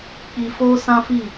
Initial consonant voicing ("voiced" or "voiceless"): voiceless